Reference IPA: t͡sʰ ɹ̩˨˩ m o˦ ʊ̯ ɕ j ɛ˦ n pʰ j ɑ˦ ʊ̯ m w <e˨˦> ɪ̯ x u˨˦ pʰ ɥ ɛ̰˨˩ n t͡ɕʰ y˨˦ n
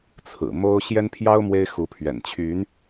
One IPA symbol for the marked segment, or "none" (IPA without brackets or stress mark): e˦